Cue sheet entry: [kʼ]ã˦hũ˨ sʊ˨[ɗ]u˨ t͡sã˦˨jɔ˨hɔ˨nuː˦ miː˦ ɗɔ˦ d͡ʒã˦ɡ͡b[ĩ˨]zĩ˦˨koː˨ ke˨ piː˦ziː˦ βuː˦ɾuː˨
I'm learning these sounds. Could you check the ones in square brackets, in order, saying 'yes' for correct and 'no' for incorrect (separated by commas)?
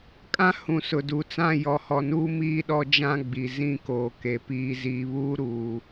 yes, no, no